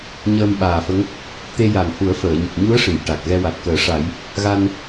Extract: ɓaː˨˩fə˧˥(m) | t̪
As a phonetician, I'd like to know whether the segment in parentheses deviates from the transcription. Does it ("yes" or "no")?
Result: yes